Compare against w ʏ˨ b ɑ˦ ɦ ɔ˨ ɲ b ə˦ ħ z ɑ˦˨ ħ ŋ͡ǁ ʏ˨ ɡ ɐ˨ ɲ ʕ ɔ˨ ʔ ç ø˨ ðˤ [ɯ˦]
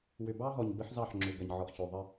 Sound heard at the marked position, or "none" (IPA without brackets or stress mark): ə˦